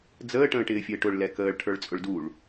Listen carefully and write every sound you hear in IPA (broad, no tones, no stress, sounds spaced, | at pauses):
d͡z əː ʈ ə̃ː ʈ ɪː fʲ əː ʈ ʊ ɭ l ɛ k əː ɭ ʈʰ ə˞ ɭ t͡sʼ ʊ ɭ d u ɭ